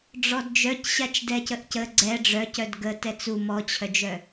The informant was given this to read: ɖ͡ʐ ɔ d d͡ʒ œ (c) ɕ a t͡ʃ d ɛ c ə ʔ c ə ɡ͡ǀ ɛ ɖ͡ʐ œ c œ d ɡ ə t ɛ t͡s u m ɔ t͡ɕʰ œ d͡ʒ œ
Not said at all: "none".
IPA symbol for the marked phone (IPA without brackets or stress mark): c